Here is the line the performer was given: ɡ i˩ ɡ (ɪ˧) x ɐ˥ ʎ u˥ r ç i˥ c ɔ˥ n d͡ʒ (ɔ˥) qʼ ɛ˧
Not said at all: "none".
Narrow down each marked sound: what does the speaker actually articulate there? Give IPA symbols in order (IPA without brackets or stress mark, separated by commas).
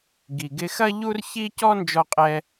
ɪ˧, ɔ˧